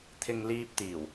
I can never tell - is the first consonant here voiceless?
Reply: yes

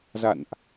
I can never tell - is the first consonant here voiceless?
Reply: no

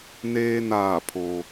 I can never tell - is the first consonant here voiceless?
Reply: no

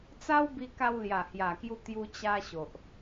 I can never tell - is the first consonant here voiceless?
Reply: yes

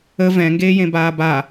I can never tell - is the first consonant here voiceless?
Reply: no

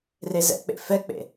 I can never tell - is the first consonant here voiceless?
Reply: no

